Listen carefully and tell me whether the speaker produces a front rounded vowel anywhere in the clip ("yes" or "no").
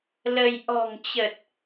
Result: no